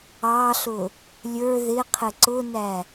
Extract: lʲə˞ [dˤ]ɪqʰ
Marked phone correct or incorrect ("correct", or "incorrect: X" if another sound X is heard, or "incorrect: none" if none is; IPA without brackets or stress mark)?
incorrect: ð